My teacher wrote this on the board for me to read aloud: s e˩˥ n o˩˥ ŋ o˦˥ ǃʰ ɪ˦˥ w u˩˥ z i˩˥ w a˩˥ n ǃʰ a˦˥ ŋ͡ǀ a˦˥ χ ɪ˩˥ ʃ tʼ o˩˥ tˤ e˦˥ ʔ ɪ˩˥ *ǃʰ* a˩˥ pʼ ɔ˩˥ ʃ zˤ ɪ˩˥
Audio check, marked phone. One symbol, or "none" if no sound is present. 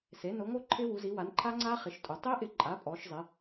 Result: ǃʼ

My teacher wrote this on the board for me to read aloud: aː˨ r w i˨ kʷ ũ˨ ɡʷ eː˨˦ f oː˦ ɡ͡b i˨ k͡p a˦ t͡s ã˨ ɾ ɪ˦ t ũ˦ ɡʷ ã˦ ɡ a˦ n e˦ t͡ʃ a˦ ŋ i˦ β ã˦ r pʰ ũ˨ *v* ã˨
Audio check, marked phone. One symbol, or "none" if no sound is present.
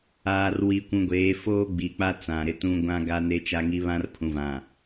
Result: v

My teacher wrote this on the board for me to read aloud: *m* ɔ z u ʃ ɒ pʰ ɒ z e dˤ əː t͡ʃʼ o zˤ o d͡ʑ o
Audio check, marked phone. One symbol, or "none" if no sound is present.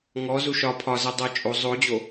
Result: ŋ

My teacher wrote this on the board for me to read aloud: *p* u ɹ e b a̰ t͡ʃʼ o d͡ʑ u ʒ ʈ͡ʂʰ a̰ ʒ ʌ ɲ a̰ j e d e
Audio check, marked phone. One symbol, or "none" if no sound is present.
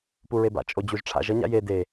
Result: p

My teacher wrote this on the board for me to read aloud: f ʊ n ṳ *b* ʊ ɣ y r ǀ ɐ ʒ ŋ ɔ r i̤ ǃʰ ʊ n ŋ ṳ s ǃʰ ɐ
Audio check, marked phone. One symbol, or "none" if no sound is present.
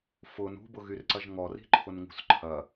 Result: b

